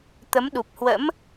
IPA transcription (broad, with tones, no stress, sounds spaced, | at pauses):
t̪ ə˨˦ m ɗ u˨˩ p̚ h w ə̰˧˥ m